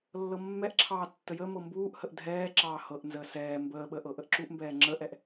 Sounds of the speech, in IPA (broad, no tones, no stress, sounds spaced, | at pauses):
lː ɤ mː ɛ ʔ ǁʰ ɑː tː ə j ə m ɤ m b uː ʔ h ə ʔ dʱ ɛː ǁ ɑː h ɤ ʔ n z əː s ɛː m b əː ɓ əː ʔ ɤ ʔ ə ʔ ǁ u ʔ m b ɛː ŋ͡ǁ ə ʔ ɛ ʔ